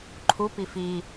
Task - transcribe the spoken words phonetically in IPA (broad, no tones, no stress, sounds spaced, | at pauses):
ǃʰ u p i f i